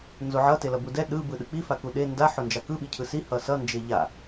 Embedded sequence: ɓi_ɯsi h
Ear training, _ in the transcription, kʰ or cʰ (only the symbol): cʰ